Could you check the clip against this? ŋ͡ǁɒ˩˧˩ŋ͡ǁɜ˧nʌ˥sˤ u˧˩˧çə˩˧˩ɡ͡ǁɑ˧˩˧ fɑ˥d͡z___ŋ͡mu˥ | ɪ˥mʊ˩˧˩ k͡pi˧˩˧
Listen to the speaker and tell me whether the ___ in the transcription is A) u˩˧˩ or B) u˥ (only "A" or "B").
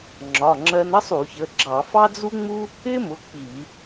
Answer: B